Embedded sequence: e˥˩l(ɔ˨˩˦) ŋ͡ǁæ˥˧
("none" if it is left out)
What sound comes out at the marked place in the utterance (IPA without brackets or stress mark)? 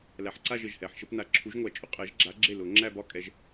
ʊ˨˩˦